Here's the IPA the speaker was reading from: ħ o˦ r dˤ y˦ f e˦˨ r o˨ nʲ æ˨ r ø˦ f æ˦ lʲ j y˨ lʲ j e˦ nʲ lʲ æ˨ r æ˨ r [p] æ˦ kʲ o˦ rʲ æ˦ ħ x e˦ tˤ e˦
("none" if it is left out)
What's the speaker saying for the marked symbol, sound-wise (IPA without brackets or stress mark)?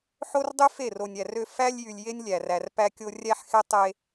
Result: p